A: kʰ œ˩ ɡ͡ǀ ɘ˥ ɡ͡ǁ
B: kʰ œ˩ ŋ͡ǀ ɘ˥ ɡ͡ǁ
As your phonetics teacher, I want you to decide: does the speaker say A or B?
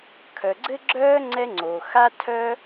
A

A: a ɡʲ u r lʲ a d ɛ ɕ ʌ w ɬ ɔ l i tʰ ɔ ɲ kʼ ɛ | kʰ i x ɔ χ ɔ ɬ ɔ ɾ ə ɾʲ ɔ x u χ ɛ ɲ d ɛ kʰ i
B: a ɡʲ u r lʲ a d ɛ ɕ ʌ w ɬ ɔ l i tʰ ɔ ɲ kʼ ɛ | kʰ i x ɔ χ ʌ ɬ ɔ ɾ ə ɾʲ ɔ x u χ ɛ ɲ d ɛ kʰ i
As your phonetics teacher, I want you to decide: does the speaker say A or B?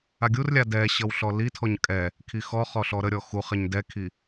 A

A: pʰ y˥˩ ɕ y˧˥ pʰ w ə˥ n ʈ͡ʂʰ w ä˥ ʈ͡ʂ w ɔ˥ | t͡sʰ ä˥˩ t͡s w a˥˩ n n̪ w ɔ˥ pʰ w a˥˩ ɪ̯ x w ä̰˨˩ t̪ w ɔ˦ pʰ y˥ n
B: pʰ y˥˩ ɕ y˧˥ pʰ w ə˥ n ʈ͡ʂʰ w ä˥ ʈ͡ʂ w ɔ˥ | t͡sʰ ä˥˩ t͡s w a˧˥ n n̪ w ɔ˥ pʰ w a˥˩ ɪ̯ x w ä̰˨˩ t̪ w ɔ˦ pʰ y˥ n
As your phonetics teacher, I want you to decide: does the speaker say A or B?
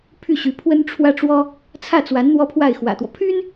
B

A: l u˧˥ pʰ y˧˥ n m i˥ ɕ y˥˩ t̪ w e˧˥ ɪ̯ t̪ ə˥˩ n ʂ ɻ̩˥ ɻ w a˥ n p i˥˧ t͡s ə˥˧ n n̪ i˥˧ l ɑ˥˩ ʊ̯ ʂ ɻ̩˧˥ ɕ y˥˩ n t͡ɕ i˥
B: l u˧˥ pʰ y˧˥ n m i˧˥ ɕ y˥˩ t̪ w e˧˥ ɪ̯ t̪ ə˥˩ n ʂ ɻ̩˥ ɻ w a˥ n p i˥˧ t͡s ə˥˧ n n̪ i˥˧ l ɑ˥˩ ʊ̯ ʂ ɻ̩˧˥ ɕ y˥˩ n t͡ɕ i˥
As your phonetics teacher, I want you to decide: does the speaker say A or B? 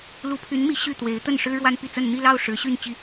B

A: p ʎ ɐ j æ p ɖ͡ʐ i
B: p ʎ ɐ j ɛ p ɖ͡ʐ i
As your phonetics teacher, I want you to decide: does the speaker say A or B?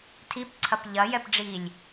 B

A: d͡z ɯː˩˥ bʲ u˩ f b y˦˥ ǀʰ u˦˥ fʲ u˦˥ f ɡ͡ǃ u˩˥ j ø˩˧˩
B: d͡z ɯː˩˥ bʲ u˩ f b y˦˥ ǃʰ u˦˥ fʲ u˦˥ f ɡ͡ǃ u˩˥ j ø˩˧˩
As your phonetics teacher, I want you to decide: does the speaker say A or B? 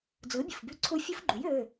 A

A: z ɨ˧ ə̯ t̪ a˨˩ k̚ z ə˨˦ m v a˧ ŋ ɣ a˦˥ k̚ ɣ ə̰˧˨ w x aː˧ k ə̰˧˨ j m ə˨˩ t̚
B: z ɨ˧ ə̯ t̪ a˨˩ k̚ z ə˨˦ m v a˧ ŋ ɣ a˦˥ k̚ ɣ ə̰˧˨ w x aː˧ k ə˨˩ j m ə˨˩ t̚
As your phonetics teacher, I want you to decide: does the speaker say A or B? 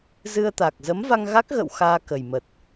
B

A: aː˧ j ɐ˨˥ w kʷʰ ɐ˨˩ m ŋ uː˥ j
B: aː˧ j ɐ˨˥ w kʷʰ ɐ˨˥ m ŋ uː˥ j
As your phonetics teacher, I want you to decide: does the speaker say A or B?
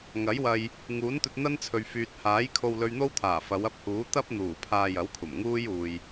A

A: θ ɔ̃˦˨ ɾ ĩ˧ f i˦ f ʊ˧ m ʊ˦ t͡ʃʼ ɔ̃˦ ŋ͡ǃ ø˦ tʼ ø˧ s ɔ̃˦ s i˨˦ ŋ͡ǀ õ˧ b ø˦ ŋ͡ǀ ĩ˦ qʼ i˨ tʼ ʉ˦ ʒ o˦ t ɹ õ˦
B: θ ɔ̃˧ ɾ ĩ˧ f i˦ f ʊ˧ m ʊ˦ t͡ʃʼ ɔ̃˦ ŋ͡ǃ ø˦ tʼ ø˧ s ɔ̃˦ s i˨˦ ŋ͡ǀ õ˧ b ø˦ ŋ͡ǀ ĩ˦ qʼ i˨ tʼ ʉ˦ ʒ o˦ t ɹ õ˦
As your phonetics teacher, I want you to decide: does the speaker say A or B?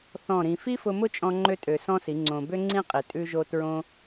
A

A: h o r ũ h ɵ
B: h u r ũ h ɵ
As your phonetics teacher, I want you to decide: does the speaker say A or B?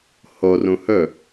A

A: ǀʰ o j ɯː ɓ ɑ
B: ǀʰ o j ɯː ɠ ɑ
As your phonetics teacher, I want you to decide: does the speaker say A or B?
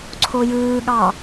B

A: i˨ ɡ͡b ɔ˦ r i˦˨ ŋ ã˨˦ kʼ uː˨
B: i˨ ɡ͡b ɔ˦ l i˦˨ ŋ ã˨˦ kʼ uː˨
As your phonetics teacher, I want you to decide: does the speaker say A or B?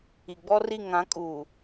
A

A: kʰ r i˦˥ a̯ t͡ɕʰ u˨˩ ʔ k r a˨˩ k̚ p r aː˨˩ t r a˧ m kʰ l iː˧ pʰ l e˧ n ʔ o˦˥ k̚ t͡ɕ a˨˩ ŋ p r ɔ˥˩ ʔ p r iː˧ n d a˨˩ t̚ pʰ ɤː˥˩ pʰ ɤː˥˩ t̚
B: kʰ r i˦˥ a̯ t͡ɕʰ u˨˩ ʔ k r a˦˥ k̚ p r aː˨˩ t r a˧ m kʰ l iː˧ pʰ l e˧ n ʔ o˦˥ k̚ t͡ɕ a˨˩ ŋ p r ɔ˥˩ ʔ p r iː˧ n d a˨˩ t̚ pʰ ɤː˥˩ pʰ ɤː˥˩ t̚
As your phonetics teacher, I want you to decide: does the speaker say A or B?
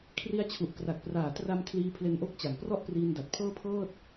A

